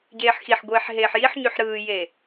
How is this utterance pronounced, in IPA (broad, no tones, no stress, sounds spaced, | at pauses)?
ɟ eː ħ x i ħ ɡʷ eː ħ ɦ eː ħ j i ħ ɲ y ħ ɾ ɯː j e